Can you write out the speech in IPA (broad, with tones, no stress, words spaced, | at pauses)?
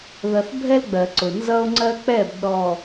ðʌ˨θ bʱɛ˦lɡ͡bɜ˨ǀʊ˨ nzʌ˦o̯ŋ͡ǀɜ˦k͡pɛ˦˨b ɗɔ˨